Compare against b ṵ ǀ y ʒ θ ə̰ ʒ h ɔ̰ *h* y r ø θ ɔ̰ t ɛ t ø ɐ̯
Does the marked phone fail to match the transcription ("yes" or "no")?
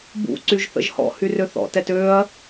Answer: no